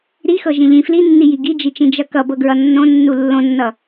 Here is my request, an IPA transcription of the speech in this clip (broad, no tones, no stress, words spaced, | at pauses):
ɾixɤ ʒĩʎĩ flinːiji ɡid͡ʒit͡ʃĩ d͡ʒʌkʌbɤ ɡɹʌnːõnːu lːõnːʌ